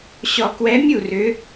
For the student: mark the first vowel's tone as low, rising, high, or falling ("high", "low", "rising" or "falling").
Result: low